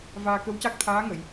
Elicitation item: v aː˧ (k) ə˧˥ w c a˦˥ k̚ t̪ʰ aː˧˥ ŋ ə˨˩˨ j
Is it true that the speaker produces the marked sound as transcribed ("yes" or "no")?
yes